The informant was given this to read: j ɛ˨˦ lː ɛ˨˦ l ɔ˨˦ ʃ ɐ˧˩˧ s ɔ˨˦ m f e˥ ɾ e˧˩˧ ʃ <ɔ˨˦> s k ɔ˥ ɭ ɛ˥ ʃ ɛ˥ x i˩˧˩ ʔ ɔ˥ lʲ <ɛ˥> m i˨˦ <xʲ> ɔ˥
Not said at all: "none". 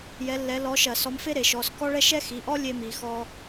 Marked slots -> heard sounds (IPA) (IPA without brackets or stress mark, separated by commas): ɔ˩˧˩, e˥, x